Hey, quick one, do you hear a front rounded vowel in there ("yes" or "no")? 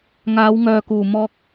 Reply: yes